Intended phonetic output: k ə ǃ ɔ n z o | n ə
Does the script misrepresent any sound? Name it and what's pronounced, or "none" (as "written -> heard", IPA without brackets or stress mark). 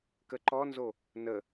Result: none